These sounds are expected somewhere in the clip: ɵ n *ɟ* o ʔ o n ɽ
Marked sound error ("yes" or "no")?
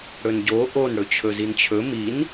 no